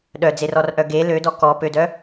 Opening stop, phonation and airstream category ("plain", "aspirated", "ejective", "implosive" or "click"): implosive